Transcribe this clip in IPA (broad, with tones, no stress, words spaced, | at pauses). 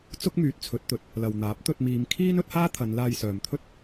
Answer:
t͡sʊ˥k̚myː˨˥t̚t͡sʰɵ˨˥t̚t̪ɵ˨t̚ | lɐ˨wn̪aː˨˥p̚ t̪ɵ˧t̚miː˨˧mkʰiː˥n ɵ˥t̚haː˥t̪ʰɐ˨˧n laː˧jsœː˨mt̪ʰɵ˥t̚